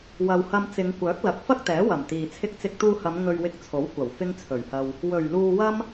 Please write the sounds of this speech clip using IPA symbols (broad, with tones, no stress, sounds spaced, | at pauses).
w ɐ˨ w h ɐ˧ m t͡s ɪ˨˧ ŋ kʷ œː˨˥ k̚ l ɐ˨ k̚ f ɐ˥ k̚ t̪ ɛː˨˥ w ɐ˨˩ m t̪ iː˨ t͡sʰ ɪ˧ k̚ t͡s ɪ˧ k̚ t̪ uː˧ h ɐ˨˧ m ŋ ɵ˧ ɥ w ɪ˧ k̚ t͡sʰ o˨˥ w kʷ ɐ˨˩ w f ɪ˥ ŋ t͡sʰ ɵ˨˩ ɥ h ɐ˧ w | w ɵ˨˩ ɥ l uː˧ w ɐ˥ m